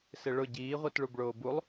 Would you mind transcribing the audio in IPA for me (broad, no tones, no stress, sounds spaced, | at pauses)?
s ɪ ɭ ʊ ɟ iː ʁʷ i t ɭ u b ɭ oː b u lˠ